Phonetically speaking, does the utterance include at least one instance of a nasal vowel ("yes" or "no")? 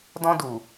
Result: yes